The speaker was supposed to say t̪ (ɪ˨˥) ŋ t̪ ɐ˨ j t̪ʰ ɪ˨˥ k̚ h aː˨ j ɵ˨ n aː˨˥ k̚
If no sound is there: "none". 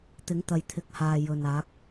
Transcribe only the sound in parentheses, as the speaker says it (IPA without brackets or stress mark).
ɪ˨˥